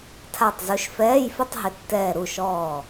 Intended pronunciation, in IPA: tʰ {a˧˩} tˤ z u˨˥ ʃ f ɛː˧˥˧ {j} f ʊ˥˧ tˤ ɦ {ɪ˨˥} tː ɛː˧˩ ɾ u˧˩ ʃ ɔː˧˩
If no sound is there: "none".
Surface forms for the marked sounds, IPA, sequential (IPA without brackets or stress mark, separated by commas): a˧˩, j, ɪ˨˥